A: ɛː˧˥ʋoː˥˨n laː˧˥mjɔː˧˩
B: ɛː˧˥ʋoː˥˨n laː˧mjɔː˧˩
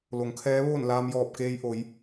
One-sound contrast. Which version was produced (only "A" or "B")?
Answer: B